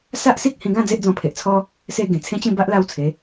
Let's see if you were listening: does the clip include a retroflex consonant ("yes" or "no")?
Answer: no